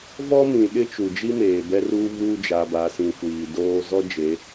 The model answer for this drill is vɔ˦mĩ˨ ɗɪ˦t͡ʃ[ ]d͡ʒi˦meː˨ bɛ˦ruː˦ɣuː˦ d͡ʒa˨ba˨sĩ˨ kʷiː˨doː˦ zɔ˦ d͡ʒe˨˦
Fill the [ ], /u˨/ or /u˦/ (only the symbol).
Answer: u˨